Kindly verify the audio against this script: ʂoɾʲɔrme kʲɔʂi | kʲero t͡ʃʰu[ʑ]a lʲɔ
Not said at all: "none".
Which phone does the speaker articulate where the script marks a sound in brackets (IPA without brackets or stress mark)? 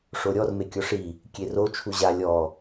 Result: ʑ